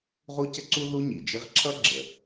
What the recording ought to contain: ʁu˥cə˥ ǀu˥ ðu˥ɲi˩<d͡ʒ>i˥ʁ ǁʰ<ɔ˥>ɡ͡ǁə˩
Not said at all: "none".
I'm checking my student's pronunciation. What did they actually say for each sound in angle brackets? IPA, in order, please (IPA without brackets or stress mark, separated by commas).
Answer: d͡ʒ, ʌ˥